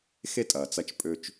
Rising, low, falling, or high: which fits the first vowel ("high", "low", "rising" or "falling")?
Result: high